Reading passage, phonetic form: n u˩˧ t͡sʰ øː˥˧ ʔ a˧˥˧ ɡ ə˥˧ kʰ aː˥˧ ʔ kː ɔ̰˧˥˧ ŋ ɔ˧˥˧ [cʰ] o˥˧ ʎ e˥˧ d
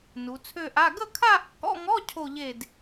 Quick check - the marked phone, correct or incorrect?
correct